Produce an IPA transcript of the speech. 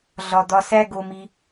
ɮ ɒ˨ d̪ ɒ˧ s æ˦ ɡ o˧ m i˧

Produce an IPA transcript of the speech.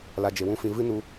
l a˧ d͡ʒ e˨ w ũ˦ f ĩ˧ v ɨ˦ n u˧

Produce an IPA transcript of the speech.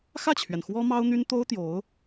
x ä˥˩ t͡ɕʰ ɥ ɛ˩ n x w ɔ˥ m ɑ˥ ʊ̯ n̪ y˥ n t̪ o˥ ʊ̯ t̪ j o˧˥ ʊ̯

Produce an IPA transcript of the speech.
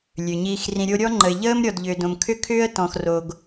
lʲ ø˩ ɲ iː˨ x r ĩ˨ ɾʲ o˦ ɾʲ ɔ˥ ŋ͡ǃ ə˨ ɪ̯ ʎ əː˥ m ɾʲ ɔ˨ d ʎ ʏː˨ d õ˨ m kʰ ʏ˥ kʰ ʏː˥ ə̯ t ɔ̃˨ x r o˨ ɡ

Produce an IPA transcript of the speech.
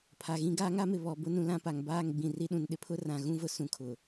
pʰ a˨ ɣ ĩ˦ ɡ aː˦ ŋ a˦ m ɪ˨ β ɔ˨ b ʊ˦ n ũ˨ l ã˦˨ p a˨ ŋ b aː˦˨ ŋ ɡ͡b ĩ˨ r i˦ ɗ ũ˨ n ɗ ɪ˦ pʰ ʊ˦ r ã˨ ɣ ũ˦ v ʊ˨ s ũ˦ kʰ ʊ˨

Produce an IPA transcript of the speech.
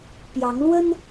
p j ɑ˨˦ ŋ l w ə˦ n

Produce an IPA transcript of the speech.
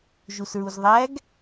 ʒ u s ɹ u z ðˤ æ ɡ

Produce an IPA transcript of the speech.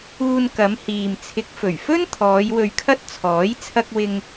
uː˧ n k ɐ˨˧ m h iː˨ m t͡sʰ ɪ˨ k̚ f ɵ˨˩ ɥ f ɵ˥ n t̪ʰ ɔː˨˧ j w ɵ˧ ɥ kʰ ɐ˥ t̚ t͡sʰ ɔː˨˥ j t͡sʰ ɐ˥ k̚ w ɪ˥ ŋ

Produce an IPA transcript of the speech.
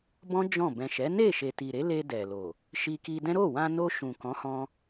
b ɔ̃˦ d͡ʒ ɔ̃˦˨ b ɛ̃˨ ʃ ɛ˨˦ n e˦˨ ʃ e˨ t i˨ ɾ e˨˦ l e˧ d ɛ˨ l o˨ | ʃ i˧ k i˧ d ɛ̃˦ ɾ o˦˨ w ã˧ n o˧ ʃ ũ˨ k ɔ̃˨˦ h ɔ̃˧

